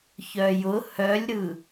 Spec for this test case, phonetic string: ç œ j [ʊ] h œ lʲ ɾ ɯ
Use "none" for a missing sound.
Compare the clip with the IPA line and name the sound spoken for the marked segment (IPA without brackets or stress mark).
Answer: ʊ